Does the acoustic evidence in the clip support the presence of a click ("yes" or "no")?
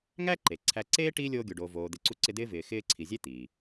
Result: yes